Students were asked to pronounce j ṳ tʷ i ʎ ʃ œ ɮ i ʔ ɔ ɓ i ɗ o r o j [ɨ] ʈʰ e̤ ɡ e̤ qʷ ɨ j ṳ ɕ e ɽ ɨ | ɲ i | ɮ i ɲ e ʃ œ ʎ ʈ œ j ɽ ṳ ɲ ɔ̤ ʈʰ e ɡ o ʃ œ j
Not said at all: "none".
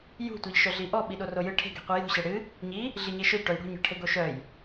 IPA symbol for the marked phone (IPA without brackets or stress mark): ɨ